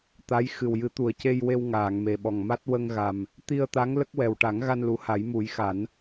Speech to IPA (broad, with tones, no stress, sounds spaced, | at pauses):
t̪ a˧˥ j x ɨ˨˩ w j ɨ˨˩˦ t̪ u˨˩ ə̯ c e˧ j w e˧ w ŋ aː˨˩˨ ŋ m e˨˩ ɓ ɔ˨˩ ŋ m a˦˥ t̚ w ə˧ ŋ ɣ a˨˩ m | t̪ i˧ ə̯ t̪ a˧˥ ŋ l ə˦˥ k̚ w ɛ˨˩ w ʈ a˨˩˦ ŋ ɣ a˧ n l u˨˩˦ h a˨˩˦ j m u˨˩˦ j x a˨˩˦ n